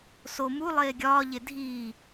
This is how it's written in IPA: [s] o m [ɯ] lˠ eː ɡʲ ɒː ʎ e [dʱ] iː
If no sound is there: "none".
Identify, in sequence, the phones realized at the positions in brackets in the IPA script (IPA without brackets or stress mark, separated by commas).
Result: s, u, dʱ